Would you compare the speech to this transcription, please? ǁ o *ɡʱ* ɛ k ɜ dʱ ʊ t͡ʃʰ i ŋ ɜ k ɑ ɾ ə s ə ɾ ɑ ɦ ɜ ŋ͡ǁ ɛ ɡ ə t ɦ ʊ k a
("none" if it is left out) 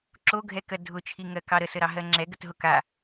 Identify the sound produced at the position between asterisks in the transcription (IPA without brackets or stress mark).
ɡʱ